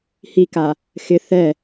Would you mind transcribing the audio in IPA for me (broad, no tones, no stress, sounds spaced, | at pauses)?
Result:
h i k a | x ɪ θ ɛ